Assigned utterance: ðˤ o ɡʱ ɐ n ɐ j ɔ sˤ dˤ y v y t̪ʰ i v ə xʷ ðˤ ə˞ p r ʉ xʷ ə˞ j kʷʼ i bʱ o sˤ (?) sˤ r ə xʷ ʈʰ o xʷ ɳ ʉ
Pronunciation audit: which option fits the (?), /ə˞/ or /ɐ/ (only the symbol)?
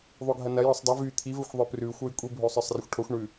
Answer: ə˞